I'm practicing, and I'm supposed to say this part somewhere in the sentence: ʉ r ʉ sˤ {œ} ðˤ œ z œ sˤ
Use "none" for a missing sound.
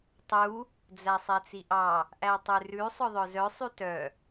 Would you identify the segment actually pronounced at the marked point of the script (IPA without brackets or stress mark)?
œ